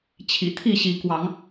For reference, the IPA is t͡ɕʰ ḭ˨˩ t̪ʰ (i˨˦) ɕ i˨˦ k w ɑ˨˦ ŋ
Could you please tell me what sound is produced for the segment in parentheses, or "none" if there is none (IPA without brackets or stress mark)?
i˥˨